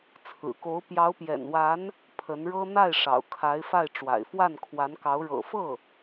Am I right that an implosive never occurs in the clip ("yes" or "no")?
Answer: yes